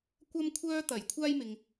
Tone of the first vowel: high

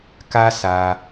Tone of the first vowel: high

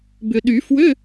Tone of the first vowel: low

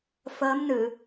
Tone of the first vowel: rising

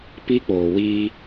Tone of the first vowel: high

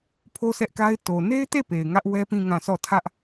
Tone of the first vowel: high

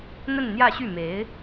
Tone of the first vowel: falling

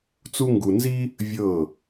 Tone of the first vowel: high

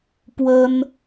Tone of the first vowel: high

